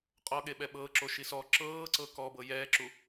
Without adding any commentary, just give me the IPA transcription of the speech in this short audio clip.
qʼ ɔ ɠ e ɓ ɛ ɓ ɤ ǁ o ʃ i s ɔ ǁ ɤː ǀ ɤ k ɔ b ɤ j ɛː ǁ u

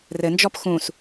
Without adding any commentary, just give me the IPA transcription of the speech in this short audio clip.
r ɘ n d͡ʒ ɔ p x ũ s

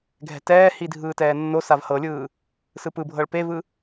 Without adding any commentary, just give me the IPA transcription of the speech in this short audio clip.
ɡʱ ɛ̤ t ɛː h i dʱ ɯː t ɛː nː o s a v h ɤ lʲ ɯː | s ɯ p ɯ bʱ ɤ ɭ p e v ɯ

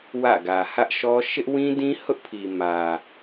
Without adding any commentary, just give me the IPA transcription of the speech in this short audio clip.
w ä̰˦˨ ɡ ä˨ h ä˦ ʔ ʃ ɔ˦ ʃ ɪ˦ ʔ w ĩ˦ d ĩ˦ h ʊ˦ ʔ pʰ i˨ m ä˨

